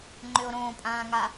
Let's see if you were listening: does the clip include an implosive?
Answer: no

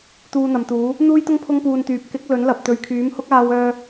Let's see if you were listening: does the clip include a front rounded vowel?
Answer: yes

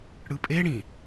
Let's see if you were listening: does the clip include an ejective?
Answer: yes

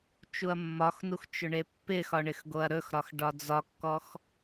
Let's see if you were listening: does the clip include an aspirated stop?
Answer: no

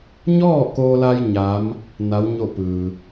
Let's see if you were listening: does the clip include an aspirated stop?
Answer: no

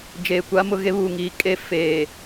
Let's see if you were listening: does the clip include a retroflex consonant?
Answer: no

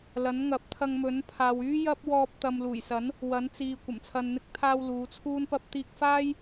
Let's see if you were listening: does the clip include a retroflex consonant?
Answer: no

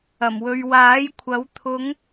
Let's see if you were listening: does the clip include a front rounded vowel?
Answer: no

